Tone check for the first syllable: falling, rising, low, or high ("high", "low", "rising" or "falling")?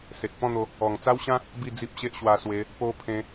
low